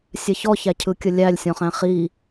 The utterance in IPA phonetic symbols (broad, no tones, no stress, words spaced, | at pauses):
sʲɛçɔ çæcʰɯkʲəlʲælʲ sʲɔ̃χæ̃χi